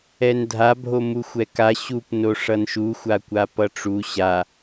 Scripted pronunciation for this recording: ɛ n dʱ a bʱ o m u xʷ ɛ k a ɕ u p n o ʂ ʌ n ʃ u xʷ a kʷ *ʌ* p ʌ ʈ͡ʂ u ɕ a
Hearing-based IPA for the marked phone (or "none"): a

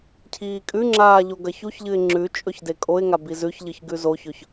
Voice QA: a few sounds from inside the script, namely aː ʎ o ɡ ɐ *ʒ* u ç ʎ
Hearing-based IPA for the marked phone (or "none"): ç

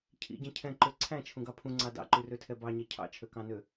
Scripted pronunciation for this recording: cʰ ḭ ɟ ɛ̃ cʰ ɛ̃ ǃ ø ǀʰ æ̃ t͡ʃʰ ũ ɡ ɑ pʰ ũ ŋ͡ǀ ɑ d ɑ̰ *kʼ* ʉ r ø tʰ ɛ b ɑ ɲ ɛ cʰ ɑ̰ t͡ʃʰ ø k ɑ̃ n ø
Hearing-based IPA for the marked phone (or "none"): ǃ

